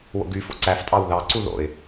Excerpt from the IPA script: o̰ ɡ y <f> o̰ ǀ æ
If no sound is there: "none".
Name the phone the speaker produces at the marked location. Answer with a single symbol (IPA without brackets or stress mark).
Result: f